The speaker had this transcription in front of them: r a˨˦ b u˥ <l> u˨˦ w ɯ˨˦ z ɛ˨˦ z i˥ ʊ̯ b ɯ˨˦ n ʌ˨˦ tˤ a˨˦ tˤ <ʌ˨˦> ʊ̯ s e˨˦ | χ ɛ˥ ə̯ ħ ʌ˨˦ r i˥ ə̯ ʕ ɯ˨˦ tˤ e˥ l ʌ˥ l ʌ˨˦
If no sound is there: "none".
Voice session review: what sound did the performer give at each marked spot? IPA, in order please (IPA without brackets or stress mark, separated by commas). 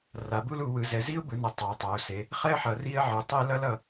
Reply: l, a˨˦